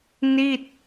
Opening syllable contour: falling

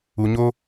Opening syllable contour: low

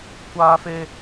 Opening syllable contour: high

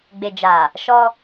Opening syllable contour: low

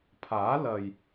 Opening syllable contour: rising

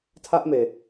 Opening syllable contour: high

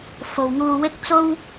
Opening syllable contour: low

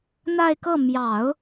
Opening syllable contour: falling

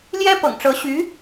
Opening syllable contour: high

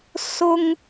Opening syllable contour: high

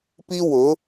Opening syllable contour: high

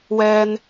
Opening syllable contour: high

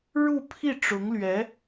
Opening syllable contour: falling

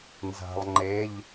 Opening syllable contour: low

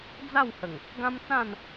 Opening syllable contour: falling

